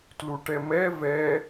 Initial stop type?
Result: plain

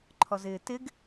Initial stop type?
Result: click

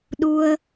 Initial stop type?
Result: implosive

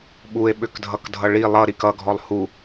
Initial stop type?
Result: implosive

